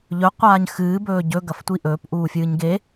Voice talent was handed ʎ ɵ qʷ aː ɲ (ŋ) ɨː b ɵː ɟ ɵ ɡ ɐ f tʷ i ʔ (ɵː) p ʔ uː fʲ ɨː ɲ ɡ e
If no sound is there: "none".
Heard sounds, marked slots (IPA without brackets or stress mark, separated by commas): x, ɵː